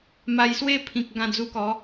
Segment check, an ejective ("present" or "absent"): absent